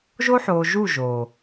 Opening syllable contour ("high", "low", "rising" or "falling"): high